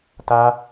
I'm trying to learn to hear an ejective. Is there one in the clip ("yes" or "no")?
no